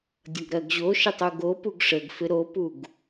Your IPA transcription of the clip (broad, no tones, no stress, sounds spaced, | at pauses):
dʲ ʌ ɡ ɾ ɜ ɡ ʑ o ʃ ɪ tˤ u ɡ o p u ɡ ʂ ə ɡ f ɪ ɾ o p u ɡ